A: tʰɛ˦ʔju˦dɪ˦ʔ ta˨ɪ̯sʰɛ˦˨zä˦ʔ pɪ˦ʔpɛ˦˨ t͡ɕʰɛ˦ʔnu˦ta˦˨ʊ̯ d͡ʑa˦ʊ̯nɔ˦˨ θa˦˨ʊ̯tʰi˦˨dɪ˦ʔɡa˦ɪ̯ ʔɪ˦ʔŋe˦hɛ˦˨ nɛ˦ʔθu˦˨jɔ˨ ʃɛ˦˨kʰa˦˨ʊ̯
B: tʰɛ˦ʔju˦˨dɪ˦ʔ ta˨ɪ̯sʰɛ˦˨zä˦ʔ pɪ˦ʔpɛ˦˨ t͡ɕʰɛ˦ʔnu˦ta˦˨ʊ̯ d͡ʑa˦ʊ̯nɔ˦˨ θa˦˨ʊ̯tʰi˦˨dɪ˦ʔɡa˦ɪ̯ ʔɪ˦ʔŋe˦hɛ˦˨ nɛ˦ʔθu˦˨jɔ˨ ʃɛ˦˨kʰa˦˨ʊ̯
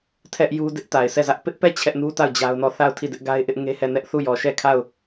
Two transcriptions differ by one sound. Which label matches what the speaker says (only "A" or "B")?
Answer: A